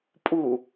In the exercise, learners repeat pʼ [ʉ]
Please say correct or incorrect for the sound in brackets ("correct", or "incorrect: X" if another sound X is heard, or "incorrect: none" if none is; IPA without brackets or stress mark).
incorrect: u